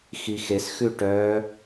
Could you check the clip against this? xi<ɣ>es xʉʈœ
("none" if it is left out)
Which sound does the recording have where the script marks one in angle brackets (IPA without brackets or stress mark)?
x